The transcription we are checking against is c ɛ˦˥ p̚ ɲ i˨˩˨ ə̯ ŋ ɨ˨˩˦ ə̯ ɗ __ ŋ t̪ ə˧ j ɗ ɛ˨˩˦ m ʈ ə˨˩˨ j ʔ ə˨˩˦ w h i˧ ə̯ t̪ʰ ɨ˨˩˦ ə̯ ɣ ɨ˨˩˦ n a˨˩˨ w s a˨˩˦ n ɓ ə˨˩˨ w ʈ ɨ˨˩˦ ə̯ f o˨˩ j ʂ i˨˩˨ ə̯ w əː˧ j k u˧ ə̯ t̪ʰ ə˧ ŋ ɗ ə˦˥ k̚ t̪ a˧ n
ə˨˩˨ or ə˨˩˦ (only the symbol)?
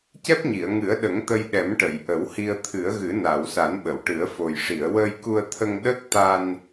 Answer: ə˨˩˦